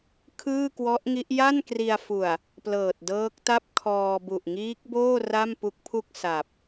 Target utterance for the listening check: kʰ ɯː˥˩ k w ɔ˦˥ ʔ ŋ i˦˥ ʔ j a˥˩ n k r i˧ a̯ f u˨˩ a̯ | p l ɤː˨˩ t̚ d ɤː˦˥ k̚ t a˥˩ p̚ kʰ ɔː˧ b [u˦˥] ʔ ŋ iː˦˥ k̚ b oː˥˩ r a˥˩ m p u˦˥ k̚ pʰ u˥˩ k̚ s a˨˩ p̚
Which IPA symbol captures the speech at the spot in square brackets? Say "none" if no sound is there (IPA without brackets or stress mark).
u˨˩